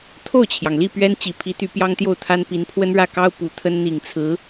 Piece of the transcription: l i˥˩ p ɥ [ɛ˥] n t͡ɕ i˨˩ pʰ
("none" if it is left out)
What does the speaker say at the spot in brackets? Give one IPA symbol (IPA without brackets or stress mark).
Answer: ɛ˥